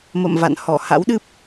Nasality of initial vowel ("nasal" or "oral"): oral